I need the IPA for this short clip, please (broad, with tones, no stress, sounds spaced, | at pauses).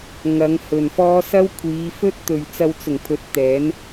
ŋ ɐ˨˧ ŋ h ɵ˨ n f ɔː˥ s ɐ˥ w kʷʰ iː˨˧ f ɵ˥ t̚ t̪ ɵ˨ ɥ t͡s ɐ˧ w t͡s ʊ˨˩ ŋ pʰ ɵ˨˥ t̚ t̪ ɛː˨˥ n